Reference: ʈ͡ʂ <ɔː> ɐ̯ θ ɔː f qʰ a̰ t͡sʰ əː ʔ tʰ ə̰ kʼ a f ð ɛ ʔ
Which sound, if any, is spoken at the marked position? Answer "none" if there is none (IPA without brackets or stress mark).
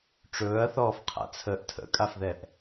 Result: ɵː